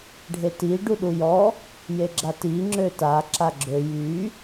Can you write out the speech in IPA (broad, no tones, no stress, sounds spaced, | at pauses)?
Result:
ɖʱ e t i ɖ u ɗ u j ɔ | j e ɡ͡ǁ a t i ŋ͡ǁ ø t a ǁ a ɡ͡ǁ ø j y